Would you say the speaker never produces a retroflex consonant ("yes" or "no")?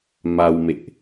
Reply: yes